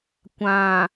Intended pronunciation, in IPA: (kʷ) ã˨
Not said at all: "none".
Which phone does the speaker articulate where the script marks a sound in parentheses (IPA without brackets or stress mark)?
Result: kʷ